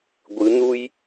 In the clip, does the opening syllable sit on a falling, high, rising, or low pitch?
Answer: rising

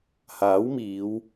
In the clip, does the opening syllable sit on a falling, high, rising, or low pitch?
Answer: rising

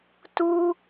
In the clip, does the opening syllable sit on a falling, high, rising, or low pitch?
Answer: high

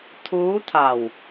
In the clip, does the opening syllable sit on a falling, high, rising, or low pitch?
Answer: rising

